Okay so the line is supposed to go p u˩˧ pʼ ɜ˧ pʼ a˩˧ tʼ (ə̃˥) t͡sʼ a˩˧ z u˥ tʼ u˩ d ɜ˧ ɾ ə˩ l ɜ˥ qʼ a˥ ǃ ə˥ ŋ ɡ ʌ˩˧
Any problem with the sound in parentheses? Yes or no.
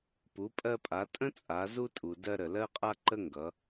no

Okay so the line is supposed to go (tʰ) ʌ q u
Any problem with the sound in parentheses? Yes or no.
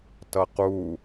yes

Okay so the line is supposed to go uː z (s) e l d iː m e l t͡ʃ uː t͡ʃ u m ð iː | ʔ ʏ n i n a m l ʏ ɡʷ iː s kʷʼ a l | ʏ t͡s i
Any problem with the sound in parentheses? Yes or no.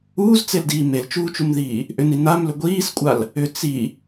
yes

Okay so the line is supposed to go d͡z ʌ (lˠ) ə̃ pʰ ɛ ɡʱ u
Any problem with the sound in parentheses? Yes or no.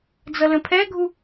yes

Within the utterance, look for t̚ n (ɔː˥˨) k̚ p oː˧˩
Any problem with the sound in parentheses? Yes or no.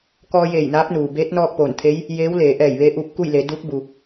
no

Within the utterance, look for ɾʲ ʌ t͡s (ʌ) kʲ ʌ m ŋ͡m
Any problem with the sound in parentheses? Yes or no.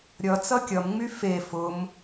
no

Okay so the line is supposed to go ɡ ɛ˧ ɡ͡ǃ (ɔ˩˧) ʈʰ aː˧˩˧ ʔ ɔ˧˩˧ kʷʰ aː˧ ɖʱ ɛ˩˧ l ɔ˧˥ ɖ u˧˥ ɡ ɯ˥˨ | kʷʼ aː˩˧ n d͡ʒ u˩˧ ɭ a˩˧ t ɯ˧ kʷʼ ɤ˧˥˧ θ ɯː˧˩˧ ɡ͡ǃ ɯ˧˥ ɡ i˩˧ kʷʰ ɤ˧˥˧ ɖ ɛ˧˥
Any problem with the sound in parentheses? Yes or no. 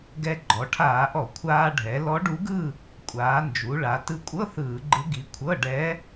no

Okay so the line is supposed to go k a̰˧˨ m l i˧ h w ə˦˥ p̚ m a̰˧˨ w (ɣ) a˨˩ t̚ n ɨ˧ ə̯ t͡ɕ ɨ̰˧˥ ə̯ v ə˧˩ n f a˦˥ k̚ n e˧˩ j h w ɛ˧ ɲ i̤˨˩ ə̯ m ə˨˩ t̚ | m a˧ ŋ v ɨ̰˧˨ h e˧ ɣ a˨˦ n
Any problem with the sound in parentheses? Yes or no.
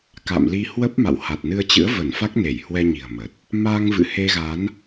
yes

